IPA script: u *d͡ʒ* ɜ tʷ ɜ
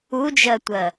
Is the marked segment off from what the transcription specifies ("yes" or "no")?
no